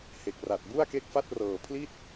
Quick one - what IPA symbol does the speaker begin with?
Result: h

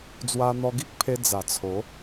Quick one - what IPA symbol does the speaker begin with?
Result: d͡z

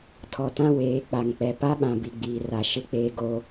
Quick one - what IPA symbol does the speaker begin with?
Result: tʰ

